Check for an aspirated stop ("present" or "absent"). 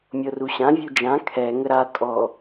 present